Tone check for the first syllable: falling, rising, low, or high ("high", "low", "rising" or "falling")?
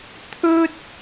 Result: high